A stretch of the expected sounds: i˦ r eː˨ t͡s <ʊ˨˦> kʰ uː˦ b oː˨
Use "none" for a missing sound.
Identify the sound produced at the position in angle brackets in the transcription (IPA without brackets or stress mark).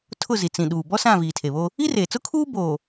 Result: ʊ˦